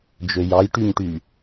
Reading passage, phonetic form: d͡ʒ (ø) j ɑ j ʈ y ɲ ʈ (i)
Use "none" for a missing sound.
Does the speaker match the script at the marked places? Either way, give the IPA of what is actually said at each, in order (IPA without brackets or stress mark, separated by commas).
ø, y